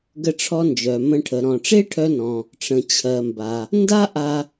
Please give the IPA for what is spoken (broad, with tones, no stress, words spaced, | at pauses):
ɡə˧ʈ͡ʂʰɔ˧ nd͡ʒœ˩mə̃˧ʈʰə˩ ɾɔ̃˩ʈ͡ʂe˥ʈʰœ˧nɔ̃˩ | ʈ͡ʂə̃˩t͡ɕʰɜ˩mba˩ | nda˥ʔa˧